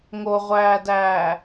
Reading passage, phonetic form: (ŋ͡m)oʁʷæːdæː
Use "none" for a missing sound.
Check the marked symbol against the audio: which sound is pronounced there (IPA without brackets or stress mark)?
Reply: ŋ